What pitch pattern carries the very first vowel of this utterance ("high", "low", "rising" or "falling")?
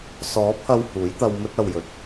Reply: rising